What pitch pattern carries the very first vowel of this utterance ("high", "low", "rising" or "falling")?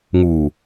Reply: low